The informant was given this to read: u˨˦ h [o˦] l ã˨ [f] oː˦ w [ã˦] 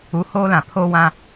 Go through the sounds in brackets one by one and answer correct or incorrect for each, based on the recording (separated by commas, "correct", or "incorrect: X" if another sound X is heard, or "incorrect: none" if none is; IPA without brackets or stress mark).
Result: incorrect: oː˦, incorrect: pʰ, correct